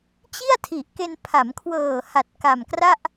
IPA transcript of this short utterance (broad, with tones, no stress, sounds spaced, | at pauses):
t͡ɕ i˥˩ a̯ tʰ i˨˩ ʔ k e˧ n pʰ a˩˦ m kʰ w ɤː˨˩ h a˨˩ t̚ k a˨˩ m k r a˥˩ ʔ